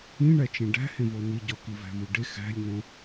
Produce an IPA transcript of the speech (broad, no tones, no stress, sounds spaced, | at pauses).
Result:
ĩ ɳ æ t͡ʃ ẽ ɖ æ̤ h ẽ v o n i ɟ ɒ k i v æ̤ v u ɖ e x æ̤ lʲ n õ